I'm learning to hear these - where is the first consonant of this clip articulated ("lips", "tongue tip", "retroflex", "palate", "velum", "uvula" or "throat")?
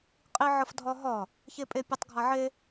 uvula